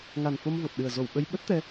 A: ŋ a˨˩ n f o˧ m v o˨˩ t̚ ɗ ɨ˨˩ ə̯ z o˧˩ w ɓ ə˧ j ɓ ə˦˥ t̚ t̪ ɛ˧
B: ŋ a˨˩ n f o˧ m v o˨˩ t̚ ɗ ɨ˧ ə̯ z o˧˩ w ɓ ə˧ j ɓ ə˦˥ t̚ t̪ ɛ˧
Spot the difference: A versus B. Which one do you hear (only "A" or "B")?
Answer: A